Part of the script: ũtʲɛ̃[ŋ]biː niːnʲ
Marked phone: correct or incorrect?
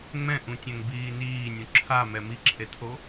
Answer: correct